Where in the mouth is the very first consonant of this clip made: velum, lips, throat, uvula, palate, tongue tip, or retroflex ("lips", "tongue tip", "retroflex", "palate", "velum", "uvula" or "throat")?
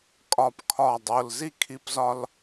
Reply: velum